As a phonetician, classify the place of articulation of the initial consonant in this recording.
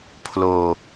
labial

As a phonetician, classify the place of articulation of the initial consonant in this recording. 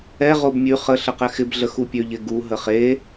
uvular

